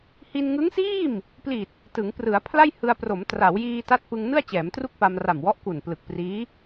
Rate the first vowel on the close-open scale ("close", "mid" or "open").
close